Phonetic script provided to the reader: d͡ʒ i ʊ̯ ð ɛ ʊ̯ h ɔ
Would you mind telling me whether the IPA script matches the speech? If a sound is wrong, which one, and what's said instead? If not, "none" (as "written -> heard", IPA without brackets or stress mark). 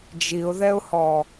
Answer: none